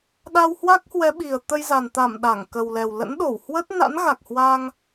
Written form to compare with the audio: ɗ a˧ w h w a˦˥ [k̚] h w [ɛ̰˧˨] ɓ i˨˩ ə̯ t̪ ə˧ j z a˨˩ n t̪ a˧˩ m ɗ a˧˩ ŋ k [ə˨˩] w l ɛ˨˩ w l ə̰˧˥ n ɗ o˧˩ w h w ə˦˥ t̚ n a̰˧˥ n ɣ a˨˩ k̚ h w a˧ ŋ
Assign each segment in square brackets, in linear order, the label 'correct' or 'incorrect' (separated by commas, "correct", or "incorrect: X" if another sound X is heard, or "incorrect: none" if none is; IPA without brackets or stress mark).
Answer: correct, incorrect: ɛ˨˦, correct